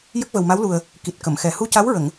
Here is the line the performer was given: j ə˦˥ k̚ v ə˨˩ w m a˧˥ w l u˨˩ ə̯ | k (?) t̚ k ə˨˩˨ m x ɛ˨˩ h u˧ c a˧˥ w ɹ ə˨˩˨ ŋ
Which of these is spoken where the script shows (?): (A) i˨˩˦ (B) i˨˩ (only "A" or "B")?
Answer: B